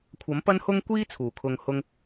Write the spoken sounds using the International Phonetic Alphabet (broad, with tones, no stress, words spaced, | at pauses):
kʷʰɐ˨˥m pɐ˥nhʊ˥ŋ kʷiː˥ t͡sʰuː˨˩kʰʊ˧ŋhʊ˥ŋ